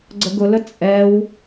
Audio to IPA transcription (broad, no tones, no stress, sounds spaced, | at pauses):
ɡ͡ǀ ə ɡ ʊ l ə t͡sʼ ɛ w